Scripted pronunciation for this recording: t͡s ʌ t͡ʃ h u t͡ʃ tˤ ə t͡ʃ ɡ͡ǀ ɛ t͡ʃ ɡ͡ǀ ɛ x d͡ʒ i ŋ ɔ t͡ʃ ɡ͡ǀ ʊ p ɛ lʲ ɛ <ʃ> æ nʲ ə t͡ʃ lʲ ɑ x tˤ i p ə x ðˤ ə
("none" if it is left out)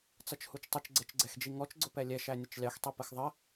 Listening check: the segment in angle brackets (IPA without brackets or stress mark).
ʃ